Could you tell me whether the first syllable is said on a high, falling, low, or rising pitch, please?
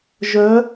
rising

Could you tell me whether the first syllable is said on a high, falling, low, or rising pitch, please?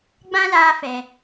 high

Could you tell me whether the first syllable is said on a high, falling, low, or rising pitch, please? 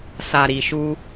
low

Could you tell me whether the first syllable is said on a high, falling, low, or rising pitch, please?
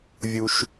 low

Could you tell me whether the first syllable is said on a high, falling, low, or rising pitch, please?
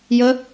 rising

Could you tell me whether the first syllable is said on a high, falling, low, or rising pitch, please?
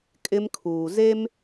high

